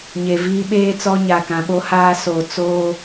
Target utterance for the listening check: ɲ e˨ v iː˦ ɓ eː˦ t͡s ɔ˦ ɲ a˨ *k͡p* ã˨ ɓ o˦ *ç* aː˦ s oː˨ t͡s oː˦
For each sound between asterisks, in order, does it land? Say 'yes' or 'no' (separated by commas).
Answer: no, no